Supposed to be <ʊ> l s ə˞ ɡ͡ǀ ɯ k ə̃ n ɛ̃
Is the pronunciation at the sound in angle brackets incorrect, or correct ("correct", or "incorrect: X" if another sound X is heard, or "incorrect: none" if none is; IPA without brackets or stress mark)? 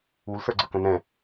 incorrect: u